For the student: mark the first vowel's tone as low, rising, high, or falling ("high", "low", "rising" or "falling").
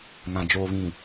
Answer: low